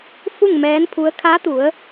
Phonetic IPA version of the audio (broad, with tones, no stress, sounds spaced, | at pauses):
f u˥˨ ŋ m ɛː˧˥ n pʰ u˧˥ ə̯ kʰ a˧˥ t̪ u˩˧ ə̯